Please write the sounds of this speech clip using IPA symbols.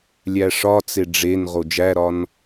lʲ æ ʂ ɒ t͡s e ɖ͡ʐ e n ʁ o d͡ʒ æ ɾ ɒ n

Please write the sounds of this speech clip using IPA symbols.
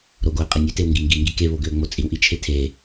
ɾ o ɡ o ə̯ qʼ e nʲ ʏ t e w ŋ ɡ i ŋ ɡ i ŋ ɡ i k e β o ɡ ʏ ə̯ ŋ͡m o t͡sʼ i w ʔ i t͡ʃʰ e tʰ e

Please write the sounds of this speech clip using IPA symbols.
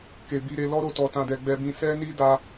k e˨ b i˧ ɾ e˧ l ɔ˦ ɾ o˦˨ t ɔ˧ t ã˧ d ɛ˧ ɡ͡b ɛ˧ b ĩ˧ s ɛ˦ n i˦ d a˦

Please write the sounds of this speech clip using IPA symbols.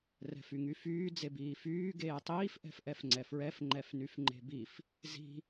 r ɛ̤ f y ŋ y f yː d͡z e b iː f yː ɡ eː tˤ iː f ʔ ɛ̤ f ʔ ɛ f ŋ͡ǀ ɛ f ɹ ɛ f ŋ͡ǃ ɛ f n y f ŋ͡ǃ e̤ b i f | z i̤

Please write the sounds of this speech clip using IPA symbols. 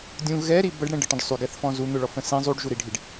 dʲ ũ ɣ ɛ ɾ i b ə ɖ ɽ ɛ̃ ɖ ə ʈ ə̃ ɖ sˤ y ɡ ɛ θ f ɔ̃ z u n̪ ʊ ɭ ɔ f ə̃ s ĩ zˤ u ɖ ʒ u ɾ i ɖʱ i ɖ

